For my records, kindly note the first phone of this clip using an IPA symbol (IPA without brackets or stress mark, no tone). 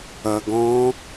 ɐ